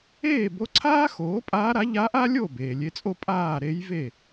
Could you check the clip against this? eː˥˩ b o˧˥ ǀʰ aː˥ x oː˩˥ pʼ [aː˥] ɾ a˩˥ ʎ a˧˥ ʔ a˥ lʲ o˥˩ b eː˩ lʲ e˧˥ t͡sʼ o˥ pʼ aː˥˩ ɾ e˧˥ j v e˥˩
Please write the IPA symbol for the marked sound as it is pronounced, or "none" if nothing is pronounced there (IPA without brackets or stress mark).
aː˧˥